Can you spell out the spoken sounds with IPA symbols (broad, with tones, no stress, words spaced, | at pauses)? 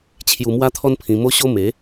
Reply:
t͡ɕʰju˧mwa˦t̪ʰɔ˦npʰĩ˧ mo˦ɕo˦ me˨˦